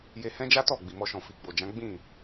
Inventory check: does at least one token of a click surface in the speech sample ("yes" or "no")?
no